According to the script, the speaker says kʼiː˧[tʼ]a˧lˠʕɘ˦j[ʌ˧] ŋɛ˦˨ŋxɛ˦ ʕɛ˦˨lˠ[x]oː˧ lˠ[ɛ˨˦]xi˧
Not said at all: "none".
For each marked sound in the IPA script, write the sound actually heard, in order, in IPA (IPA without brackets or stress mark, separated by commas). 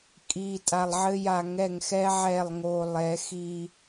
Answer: tʼ, a˧, ŋ, ɛ˨˦